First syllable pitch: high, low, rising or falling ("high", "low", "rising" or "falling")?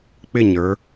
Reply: falling